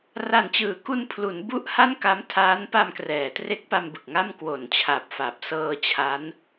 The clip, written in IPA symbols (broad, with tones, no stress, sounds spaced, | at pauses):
r a˨˩ n t͡ɕ ɯː˩˦ k u˧ n pʰ l u˩˦ n b u˥˩ ʔ h a˥˩ n k a˦˥ m tʰ aː˦˥ n p a˧ m k r ɛː˩˦ t r e˦˥ k̚ p a˧ m b ɯ˨˩ k̚ ŋ a˥˩ m k w o˨˩ n t͡ɕʰ a˨˩ p̚ f a˨˩ p̚ s ɤː˧ t͡ɕʰ a˦˥ n